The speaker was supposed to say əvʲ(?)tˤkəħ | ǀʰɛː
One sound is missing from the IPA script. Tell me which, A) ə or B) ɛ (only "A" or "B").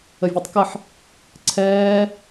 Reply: B